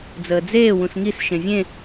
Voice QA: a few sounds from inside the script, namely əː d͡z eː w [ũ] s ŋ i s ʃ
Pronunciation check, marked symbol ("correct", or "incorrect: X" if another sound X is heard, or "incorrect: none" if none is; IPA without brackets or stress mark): correct